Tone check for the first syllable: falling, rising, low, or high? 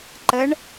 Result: rising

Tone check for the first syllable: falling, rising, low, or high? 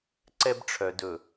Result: high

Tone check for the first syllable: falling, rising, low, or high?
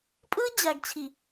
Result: high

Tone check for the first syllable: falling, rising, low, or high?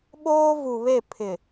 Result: high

